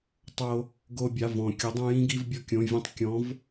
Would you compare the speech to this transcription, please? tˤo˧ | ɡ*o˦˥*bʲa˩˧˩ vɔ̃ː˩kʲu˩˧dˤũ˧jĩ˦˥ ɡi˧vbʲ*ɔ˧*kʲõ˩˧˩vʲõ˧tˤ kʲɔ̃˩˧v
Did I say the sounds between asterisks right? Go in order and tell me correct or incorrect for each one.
incorrect: o˧, correct

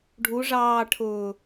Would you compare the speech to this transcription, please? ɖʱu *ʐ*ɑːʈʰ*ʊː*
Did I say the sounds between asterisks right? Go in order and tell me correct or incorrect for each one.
correct, correct

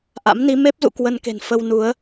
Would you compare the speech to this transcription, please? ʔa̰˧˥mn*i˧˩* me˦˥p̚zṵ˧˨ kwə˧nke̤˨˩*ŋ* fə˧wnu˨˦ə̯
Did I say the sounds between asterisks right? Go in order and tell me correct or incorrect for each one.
incorrect: i˨˦, incorrect: n

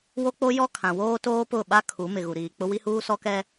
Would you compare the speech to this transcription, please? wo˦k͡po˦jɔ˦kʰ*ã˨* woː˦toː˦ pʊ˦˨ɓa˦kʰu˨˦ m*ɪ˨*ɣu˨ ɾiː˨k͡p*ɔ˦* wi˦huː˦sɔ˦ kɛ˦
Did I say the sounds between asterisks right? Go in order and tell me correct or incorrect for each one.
correct, correct, incorrect: ʊ˦

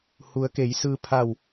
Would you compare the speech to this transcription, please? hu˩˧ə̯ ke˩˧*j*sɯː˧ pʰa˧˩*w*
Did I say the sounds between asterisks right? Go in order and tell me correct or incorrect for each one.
correct, correct

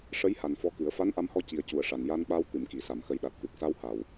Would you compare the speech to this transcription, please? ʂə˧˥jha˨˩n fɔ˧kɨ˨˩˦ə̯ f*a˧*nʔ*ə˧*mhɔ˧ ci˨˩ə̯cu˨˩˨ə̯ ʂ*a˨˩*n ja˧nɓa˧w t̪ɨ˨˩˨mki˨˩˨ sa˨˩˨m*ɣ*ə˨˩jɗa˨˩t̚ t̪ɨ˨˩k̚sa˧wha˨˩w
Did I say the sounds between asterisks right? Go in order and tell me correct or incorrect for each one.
incorrect: a˧˥, incorrect: a˧, correct, incorrect: x

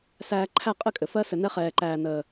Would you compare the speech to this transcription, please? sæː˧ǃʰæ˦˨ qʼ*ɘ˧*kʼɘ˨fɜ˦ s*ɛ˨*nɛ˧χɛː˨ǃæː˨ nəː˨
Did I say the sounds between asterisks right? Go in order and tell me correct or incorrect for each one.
incorrect: ɘ˦, incorrect: ɘ˨

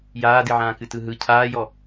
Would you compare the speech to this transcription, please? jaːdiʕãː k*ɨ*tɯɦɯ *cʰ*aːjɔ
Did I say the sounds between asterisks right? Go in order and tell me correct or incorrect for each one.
correct, correct

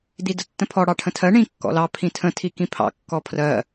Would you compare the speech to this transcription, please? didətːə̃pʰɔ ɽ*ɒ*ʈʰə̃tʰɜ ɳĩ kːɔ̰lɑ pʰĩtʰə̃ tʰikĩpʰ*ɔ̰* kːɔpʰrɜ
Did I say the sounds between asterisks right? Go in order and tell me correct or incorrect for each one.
incorrect: ɑ, incorrect: ɑ̰

